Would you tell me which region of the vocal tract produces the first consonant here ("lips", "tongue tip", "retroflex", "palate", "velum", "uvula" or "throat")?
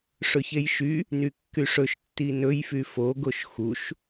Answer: retroflex